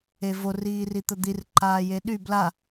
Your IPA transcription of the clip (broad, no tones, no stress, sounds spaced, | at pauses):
e v o r iː r i t̪ ə d̪ i r ǃ aː j e ɗ y b l a